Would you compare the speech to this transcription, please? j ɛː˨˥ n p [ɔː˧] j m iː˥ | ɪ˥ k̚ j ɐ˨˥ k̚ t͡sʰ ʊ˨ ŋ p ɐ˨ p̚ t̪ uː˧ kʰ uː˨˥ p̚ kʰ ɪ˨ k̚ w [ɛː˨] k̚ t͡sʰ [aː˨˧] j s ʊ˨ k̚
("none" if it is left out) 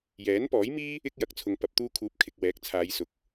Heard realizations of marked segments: ɔː˨˥, ɛː˨˥, aː˨˧

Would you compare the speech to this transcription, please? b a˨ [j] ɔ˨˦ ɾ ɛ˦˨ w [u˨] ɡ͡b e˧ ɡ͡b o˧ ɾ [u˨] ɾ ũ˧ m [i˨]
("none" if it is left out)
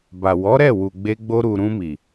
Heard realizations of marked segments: w, u˨, u˨, i˨

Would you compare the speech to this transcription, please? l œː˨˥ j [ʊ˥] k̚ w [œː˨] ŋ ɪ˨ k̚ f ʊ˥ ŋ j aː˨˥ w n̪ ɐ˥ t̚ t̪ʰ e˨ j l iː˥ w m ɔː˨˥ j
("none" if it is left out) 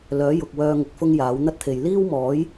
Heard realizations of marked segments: ʊ˨, œː˧

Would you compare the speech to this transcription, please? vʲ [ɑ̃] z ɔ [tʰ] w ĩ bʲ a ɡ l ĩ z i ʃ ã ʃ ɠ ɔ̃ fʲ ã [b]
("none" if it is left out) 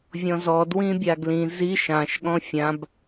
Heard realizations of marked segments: ɔ̃, d, b

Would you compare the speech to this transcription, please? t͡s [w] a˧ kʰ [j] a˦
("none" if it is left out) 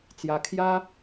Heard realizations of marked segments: j, j

